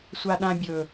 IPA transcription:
sʷ a ɗ ã bʲ ɵ

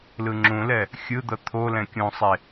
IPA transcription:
l ɯ ŋ͡ǁ ũ l ɛ | xʲ ɯ d̪ ʌ t̪ʰ o l ɛ̃ kʲ ũ sˤ e

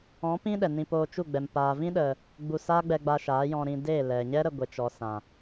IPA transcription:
ɔ̃˨˦ p ĩ˦ ɗ ɛ˨ n ĩ˧ p oː˧ t͡ʃ u˦˨ ɡ͡b ɛ˨ m p aː˨ v ĩ˦ ɗ ə˨ | ɡ͡b u˧ s aː˦ ɡ͡b ɛ˧ ɡ͡b a˧ ʃ aː˨˦ j ɔ̃˧ ɾ ĩ˧ d e˦˨ l ɛ˨ ɲ ɛ˦ ɾ ə˧ ɡʷ e˨ t͡ʃ ɔ˨ s ã˨

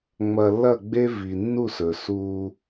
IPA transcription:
ŋ͡m ɐ˨ lː ɐ˦˨ ɡ͡b e˦ v i˨ nː u˦˨ s ɵ˨ s uː˦

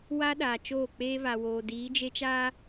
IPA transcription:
w a˦ ɗ aː˨ t͡ʃ oː˦˨ k͡p eː˦ β a˨ w oː˨ d iː˨˦ d͡ʒ e˦ t͡ʃ aː˦

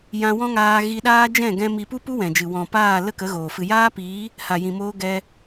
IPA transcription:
j ã˧ w ɔ̃˦ ŋ aː˧ ɣ i˧ ɗ aː˦ d͡ʒ ɛ̃˦˨ ɡ ɛ̃˧ m i˧ p u˦ p u˦ w ɛ̃˨ d͡ʒ ɨ˨ w ɔ̃˨ p aː˦˨ l ə˦ k ə˨˦ ɣ oː˨ f ɨ˨ j aː˦ p iː˨˦ | h a˨ j ĩ˨ m oː˧ ɡ ɛ˧

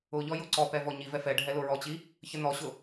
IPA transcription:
ʊ ʎ ɔ j ʊ ǀ ɔ p ɛ v ɔ ɲ i v ɛ f ɛ ɖʱ ɛ l ʊ ɹ ɔ t͡ɕ i | ç ə n ɔ ɕ ʊ

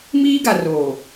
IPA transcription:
m iː˦ ɡ a˨ r oː˨

